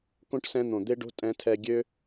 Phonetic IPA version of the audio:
kõ˦ʈ sɛ̃˦n̪õ˨ d̪e˦ɖo̤˦ tʼɛ̃˧tʰɛ˧ɡʲø˦

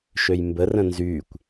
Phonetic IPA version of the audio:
ʃøjmbərə̃ nzykʷ

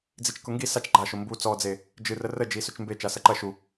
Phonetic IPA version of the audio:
d͡zit͡ʃkʊŋɡi sat͡ʃ ɡ͡ǃaʃʊ mbu t͡sɔd͡ze | d͡ʒɨ rərə d͡ʒisɵt͡ʃmbe t͡ʃasɐǃɐ ʃu

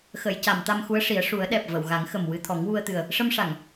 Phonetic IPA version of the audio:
xə˨˩˨jca˨˩˨m t̪a˧mxu˧˥ə̯ʂi˨˩˦ə̯ ʂu˨˩˦ə̯ ɗɛ˨˩p̚ və˨˩˨wɣa˨˩˦ŋ xə˨˩m wɨ˧t̪ʰɔ˨˩˦ŋwu˧ə̯t̪ɨ˨˩ə̯ | ʂə˧mʂa˨˩˨ŋ

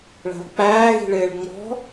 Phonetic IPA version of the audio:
ɭæ̤lˠk͡pæː ɣi̤ɭɪːɭŋ͡mɔ̤

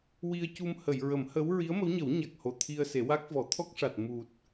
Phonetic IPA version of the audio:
wi˧ə̯cu˧m hə˨˩˨jɹə˨˩˦mhə˧˥w ɹi˧˥ə̯mə˧˥wɲə˨˩˦w ɲa˨˩k̚ho˨˩ t̪ʰi˧ə̯se˨˩˦wa˦˥k̚vɔ˨˩˦ t̪ʰɔ˦˥k̚ʂa˨˩t̚ mu˨˩t̚

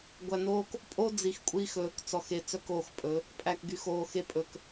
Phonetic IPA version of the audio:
ɡʷæ˨noː˧k | pʼo˦d͡zi˨x kʷʼiː˧xɵː˨kt͡sɔ˨xe˨ t͡sœ˦koː˦˨xpʼɵ˨˦ | pʼæ˨kɡy˨xoː˨xe˧ pʼɵ˨k

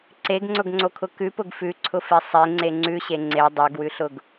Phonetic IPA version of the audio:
ǀeɡŋ͡ǀʊɡŋ͡ǀokʰʊ kʉpʊɡ fʉǀʰʊfe sˤeŋ͡ǀe ŋ͡ǀʉɕe ŋ͡ǀe dˤoɡwʉɬʊɡ

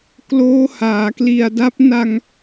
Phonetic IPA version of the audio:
kloː˦˥haː˩˦kli˨˩a̯da˦˥p̚ na˧ŋ

